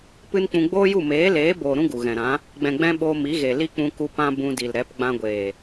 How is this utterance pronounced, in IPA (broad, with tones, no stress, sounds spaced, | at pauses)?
p ɨ˦ n k͡p ũ˧ ɡ͡b oː˦ j u˦˨ m eː˨˦ l eː˨˦ b oː˨ ɾ ũ˦ ɡ u˨ ɣ ɛ̃˨ ɾ ã˨˦ | ɡ͡b ɛ̃˨ ɡ͡b ɛ̃˧ ɓ oː˧ m i˨˦ ɣ e˨ l i˦ k͡p ũ˧ k u˧ p ã˦ b ũ˧ d i˨ l ɾ ɛ˨˦ p ɡ͡b ã˧ ɡʷ eː˨